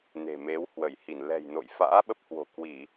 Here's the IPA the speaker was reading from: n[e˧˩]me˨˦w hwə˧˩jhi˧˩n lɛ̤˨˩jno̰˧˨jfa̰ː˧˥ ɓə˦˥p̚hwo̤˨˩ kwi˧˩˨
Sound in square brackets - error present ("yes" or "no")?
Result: yes